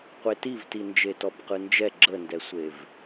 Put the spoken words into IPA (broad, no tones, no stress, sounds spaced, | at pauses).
qʷ e t i v t i n d͡ʒ e t ɔ b q ɯ n d͡ʒ ɛ ɡ͡ǁ ə n d ɛ sʷ e v